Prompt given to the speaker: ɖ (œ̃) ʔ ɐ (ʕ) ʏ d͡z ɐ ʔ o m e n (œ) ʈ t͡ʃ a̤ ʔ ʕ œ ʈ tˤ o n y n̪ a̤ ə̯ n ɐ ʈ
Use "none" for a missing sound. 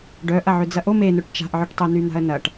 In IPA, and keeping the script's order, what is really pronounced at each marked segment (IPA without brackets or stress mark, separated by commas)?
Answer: œ, ʕ, œ